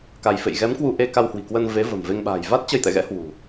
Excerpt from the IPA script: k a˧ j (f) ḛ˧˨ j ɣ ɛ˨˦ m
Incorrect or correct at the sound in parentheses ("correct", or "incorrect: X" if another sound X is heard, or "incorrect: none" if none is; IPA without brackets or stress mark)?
correct